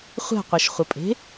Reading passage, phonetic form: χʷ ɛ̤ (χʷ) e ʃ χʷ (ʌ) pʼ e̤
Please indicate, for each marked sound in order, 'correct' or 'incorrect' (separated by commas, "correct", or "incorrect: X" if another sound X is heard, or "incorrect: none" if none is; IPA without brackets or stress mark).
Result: incorrect: qʷ, correct